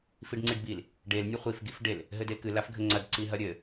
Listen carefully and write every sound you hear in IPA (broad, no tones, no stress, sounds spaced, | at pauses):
f i ɖ ŋ͡ǀ i ɖ b i l | ɖ e l nʲ ɘ χʷ i f ɡ i f ɖ e l | ɦ ɘ d e k ɨ l a f ɡʱ ɘ ŋ͡ǀ ɐ d ǀ i ɦ ɐ ɾʲ ɘ